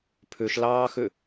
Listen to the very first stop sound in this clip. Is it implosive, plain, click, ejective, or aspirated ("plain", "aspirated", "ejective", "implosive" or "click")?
aspirated